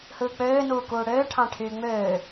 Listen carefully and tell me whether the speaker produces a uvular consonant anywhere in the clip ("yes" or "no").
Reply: no